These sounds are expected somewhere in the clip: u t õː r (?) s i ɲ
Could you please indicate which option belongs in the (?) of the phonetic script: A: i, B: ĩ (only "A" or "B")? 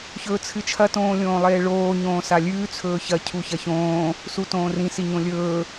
B